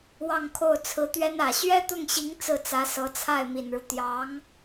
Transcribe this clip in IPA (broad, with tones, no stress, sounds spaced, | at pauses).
w ɑ˥˧ ŋ kʰ o˥˩ ʊ̯ t͡sʰ ɹ̩˧˥ t̪ ɥ ɛ˥ n ä˨˩ ɕ ɥ ɛ˥ t̪ ʊ˥˩ ŋ ɕ i˧˥ ŋ t͡s ɹ̩˥˩ t͡s ä˧˥ s ɤ˧˥ t͡sʰ a˥˩ ɪ̯ m i˨˩ n ɻ u˦ t̪ j ɑ˧˥ ŋ